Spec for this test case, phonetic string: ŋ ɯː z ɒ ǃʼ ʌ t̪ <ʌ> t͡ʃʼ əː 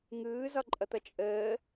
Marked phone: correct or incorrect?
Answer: correct